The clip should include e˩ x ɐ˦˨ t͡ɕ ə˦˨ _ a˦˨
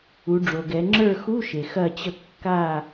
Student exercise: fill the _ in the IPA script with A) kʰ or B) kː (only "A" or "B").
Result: B